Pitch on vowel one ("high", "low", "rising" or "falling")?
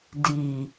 low